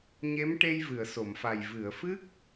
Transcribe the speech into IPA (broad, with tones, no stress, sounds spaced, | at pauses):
ɲ e˧˥ m ʈ e˧ j v ɨ˨˩˨ ə̯ s o˨˩˨ m f a˨˩ j v ɨ˨˩˨ ə̯ f ɨ˦˥ k̚